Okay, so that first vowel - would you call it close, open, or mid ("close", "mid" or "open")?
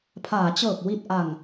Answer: open